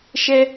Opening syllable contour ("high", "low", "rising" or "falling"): high